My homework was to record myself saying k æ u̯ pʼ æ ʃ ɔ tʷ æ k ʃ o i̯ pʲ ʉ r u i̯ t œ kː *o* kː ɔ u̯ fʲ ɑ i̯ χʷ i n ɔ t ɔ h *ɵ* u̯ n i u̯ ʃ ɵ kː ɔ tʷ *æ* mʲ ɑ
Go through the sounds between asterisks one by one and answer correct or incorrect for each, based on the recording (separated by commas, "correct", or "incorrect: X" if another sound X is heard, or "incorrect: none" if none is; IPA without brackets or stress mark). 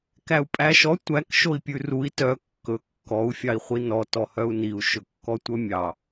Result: incorrect: ɵ, incorrect: œ, incorrect: œ